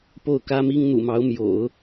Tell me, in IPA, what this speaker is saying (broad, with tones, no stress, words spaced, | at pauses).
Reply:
po˥˩ʊ̯kä˥mi˥ŋ n̪ṵ˨˩mɑ˧˥ʊ̯ mjo̰˨˩˦ʊ̯